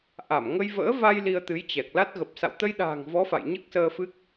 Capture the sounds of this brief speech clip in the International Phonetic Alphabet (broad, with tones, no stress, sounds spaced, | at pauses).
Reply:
ʔ a˧˩ m ŋ ə˧ j v ə̰ː˧˥ v a˧ j l i˧ ə̯ t̪ ɨ˨˦ j t͡ɕ ɛ˨˩ k̚ l a˦˥ t̚ ɣ ə˨˩ p̚ s a̰˧˨ w t̪ ə˧ j ɗ a̤ː˨˩ ŋ v ɔ˨˦ f a̰˧˨ j ɲ ɨ˦˥ k̚ s əː˧ f ɨ˦˥ k̚